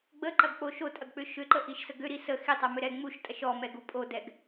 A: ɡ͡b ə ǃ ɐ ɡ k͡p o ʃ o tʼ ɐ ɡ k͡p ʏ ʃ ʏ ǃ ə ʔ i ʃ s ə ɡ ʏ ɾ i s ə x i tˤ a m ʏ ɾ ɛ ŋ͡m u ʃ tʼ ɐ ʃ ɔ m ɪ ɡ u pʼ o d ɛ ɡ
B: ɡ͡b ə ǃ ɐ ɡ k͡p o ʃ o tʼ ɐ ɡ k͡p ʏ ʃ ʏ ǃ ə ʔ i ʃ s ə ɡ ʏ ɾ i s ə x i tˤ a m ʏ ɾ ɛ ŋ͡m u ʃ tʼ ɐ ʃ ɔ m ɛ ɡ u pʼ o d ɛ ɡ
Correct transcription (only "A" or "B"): B